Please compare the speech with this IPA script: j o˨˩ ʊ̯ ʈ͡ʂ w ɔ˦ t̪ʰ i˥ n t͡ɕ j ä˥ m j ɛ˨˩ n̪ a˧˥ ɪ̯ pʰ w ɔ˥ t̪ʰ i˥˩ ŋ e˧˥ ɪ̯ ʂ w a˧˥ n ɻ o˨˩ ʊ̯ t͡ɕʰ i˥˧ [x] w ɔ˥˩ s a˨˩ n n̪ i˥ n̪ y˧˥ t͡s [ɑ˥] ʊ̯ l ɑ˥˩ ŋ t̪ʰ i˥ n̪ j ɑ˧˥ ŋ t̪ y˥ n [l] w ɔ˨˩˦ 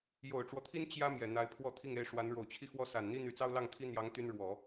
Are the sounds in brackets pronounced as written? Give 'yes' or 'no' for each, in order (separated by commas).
yes, yes, no